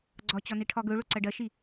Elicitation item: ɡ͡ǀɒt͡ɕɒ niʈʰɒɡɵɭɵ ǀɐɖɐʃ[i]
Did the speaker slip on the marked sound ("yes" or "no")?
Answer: no